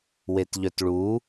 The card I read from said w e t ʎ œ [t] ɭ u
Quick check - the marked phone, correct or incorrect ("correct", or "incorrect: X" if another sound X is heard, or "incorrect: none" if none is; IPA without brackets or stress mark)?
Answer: correct